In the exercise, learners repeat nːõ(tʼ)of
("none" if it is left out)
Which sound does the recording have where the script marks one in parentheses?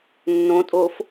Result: tʼ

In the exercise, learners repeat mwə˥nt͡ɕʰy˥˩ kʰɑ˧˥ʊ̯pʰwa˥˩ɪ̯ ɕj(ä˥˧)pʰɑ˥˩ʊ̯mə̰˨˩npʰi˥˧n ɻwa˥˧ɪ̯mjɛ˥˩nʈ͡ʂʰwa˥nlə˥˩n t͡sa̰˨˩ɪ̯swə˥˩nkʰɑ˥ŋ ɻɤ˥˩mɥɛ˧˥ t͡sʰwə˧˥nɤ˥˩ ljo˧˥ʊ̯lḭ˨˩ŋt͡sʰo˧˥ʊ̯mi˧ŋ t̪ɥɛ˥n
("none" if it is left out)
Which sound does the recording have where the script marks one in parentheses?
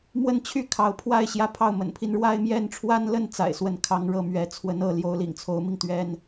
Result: ä˥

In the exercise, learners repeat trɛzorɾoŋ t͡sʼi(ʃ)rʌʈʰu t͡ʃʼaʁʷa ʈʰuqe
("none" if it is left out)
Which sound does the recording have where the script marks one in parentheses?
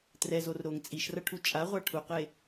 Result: ʃ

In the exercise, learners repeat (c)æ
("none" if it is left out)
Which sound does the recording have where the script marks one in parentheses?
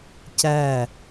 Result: c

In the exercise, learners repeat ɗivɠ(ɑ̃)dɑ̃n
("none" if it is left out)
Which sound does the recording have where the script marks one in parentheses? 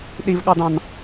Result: ɑ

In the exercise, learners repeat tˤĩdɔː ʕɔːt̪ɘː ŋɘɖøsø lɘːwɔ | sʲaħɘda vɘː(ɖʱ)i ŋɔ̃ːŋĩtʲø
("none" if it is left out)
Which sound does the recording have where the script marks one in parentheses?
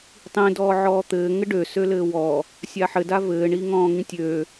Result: ɳ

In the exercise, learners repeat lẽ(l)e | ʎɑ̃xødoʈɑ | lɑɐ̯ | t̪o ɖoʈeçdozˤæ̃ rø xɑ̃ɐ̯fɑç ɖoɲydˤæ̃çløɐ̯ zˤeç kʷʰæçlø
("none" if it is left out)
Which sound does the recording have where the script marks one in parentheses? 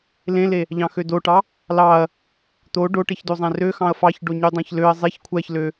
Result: l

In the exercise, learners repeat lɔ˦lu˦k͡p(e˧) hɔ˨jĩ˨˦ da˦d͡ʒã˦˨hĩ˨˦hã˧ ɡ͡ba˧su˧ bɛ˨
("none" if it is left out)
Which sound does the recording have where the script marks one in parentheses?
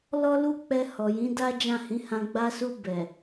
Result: ɛ˧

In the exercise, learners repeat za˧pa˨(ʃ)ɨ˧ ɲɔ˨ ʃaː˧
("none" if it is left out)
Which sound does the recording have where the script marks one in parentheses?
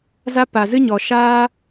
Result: z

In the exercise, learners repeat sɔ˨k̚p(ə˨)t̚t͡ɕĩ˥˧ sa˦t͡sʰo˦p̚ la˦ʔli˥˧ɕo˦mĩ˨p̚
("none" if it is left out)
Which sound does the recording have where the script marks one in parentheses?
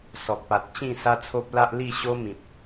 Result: a˨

